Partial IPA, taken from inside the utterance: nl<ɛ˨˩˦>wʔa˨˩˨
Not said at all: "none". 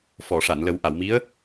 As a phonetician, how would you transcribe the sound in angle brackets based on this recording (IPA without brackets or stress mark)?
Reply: ə˨˩˦